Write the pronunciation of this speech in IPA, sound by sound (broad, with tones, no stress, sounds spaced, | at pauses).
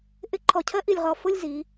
ʔ ɪ˧˥ ǃʰ ɔ˧˩ cʰ ɜ˥ ʔ i˧˩ lʲ ʁ ɔ˧˩ f ʊ˥˧ lʲ z i˩˧